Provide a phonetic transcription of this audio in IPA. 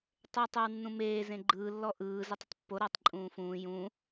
tˤ e tˤ o w nː ũ m eː z ẽ ɡ͡ǃ ɯː lː ɔ ʔ ɯː z ə tˤ ə tˤ pː o ɾ ɔ tˤ ǃʼ ũː f ũː j ũ

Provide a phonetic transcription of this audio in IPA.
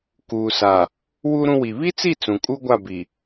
k uː˨ s a˨ | w u˦ ɾ ũ˦ w i˨ β i˦ t͡s i˦˨ t͡s ũ˨ kʼ u˦ ɡʷ a˦˨ b i˨

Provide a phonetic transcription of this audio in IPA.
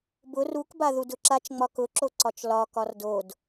b ʊ r u k b a ð u d ʊ ǁ a t͡ʃ ŋ͡m ɒ k ʊ ǁ o ǀ ɒ t͡ʃ l ɒ k ɒ r d o d

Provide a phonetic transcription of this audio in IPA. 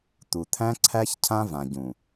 t̪ u˨ t̪ʰ æ̃˦ ǀʰ æ˦ ç cʰ ã˦ v ã˨ ɟ ũ˨

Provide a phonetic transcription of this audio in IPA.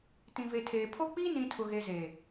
t ĩ˨ v e˨ tʰ eː˨ pʰ o˦ k͡p iː˦ n ĩ˨ tʰ ʊ˨ ɣ e˨ z e˨

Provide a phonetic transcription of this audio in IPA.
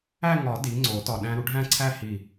æ˥˧ ŋ ɒ˨˩˦ d i˩˥ ŋ͡ǀ o˨˩˦ t ɒ˧˩ ɗ æ̃˧ ɾ u˩˥ ɖʱ æ̃˥˧ ǀʰ æ˥˧ h i˧˩

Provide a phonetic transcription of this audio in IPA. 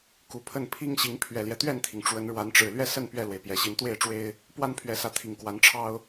k u˨˩ pʰ ə˥˨ n pʰ i˦ ŋ ɕ i˨˦ ŋ pʰ ɥ ɛ˨˩ l j ɛ˦ t̪ ɥ ɛ˥˨ n t̪ʰ i˩ ŋ ʈ͡ʂ w ə˨˦ n ɻ w a˨˦ n ʈ͡ʂ ɻ̩˨˩ l ɥ ɛ˦ s ə˥˨ n p ɥ ɛ˥˨ l w e˩ ɪ̯ p j ɛ˨˩ ɕ i˨˦ n t̪ w e˥˨ ɪ̯ ʈ͡ʂ w e˦ ɪ̯ | p w a˦ n pʰ ɥ ɛ˨˦ s ä˨˦ t̪ʰ i˨˩ ŋ k w a˨˦ n ʈ͡ʂʰ ɑ˦ ʊ̯

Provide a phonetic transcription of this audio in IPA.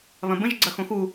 β ɐ̃ b ə̃ ʒ ɡ͡ǀ ɐ x õ x u

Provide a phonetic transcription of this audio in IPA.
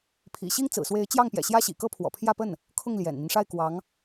pʰ ḭ˨˩ ɕ i˥ ŋ t͡s ɹ̩˨˩ s w e˧˥ ɪ̯ t͡ɕ j ɑ˥˩ ŋ p j ɛ̰˨˩ ɕ j ä˥ ɕ ḭ˨˩ k ɤ˥ pʰ w ɔ̰˨˩ pʰ j ä˥˧ p ə˥˩ n | kʰ ʊ˥˩ ŋ l j ɛ̰˨˩ n n̪ i˦ n ʂ a˥˩ ɪ̯ k w ɑ˧˥ ŋ

